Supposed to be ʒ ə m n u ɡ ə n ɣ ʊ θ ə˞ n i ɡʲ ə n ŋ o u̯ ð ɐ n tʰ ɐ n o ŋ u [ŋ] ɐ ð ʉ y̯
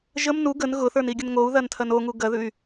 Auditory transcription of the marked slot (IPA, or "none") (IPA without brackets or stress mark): ɡ